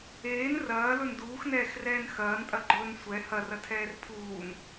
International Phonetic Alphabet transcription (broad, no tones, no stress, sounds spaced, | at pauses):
eː n r ɐː l ɵ n d uː x n ɛː x r ɛː n x ɐː n tʼ ɐ ɡ͡ǃ ɵː n sʷ ɛ h ɐ r ɐ tʰ ɛː r pʰ uː n